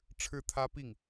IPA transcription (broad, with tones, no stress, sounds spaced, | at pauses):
ʈ͡ʂʰ ɻ̩˥˩ t̪ʰ ä˥ p i˥˩ ŋ